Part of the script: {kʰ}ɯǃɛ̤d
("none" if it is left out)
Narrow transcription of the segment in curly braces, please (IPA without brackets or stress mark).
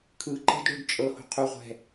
kʰ